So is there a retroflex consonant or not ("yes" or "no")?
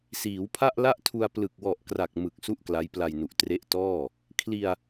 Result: no